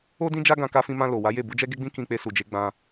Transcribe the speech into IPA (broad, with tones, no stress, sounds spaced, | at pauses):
o˦ d ĩ˦ d͡ʒ a˦ ɡ ã˧ k a˧ f ĩ˧ m ã˧ l o˨ w a˨˦ j e˦˨ b u˨˦ d͡ʒ ɛ˦ ɡ e˦ ɡ͡b ĩ˦ k ĩ˧ k͡p e˧ s u˨ d͡ʒ e˨˦ ɡ͡b ã˧